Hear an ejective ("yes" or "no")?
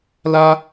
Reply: no